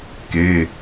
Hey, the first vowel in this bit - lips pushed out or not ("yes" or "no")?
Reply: no